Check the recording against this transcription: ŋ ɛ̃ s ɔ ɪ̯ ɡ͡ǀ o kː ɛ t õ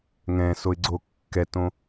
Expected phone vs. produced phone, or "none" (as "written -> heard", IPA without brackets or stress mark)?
ɔ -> o